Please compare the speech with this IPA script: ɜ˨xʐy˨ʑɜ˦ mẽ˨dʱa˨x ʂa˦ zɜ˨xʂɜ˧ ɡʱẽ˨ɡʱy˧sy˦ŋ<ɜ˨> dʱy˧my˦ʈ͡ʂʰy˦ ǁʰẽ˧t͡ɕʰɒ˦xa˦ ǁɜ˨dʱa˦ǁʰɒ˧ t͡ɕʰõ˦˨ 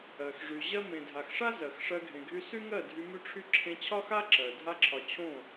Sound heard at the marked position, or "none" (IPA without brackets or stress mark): ɜ˦˨